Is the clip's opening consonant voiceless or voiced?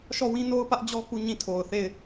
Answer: voiceless